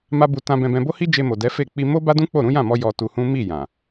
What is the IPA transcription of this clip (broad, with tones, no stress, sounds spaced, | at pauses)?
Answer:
m a˦ b u˧ t ã˧ b ɛ̃˧ b ɛ̃˧ b o˦ h i˦ d͡ʒ e˧ m o˨ d ɛ˨˦ f e˦˨ k͡p i˧ m o˦ b a˦ d ũ˦ k͡p o˦˨ ɾ ũ˨˦ j ã˦˨ m ɔ˧ j ɔ˧ t u˧ h ũ˦ m i˦˨ j ã˨